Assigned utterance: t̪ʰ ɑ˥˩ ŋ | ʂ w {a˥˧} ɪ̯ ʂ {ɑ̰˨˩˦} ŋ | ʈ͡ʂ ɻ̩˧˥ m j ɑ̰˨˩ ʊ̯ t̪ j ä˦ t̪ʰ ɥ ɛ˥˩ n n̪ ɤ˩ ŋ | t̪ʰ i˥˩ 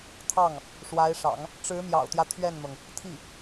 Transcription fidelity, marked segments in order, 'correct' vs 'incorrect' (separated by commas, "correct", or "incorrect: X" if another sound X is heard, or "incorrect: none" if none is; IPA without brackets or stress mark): incorrect: a˧˥, correct